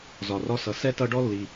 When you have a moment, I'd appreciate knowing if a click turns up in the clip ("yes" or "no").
no